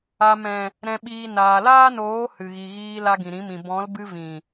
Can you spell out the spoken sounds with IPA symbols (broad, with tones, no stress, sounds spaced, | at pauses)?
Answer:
a˨ m ɛ̃˨ | ɾ ɛ̃˨ ɓ iː˨ n aː˨ l aː˦ n oː˨˦ h ɨ˨ ɣ i˨ ɣ iː˧ l a˧ ɡ ĩ˨ ɾ ĩ˨˦ m ĩ˨ b ɔ̃˨˦ l b ɨ˧ v ĩ˨